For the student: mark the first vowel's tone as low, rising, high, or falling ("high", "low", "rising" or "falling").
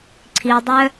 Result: low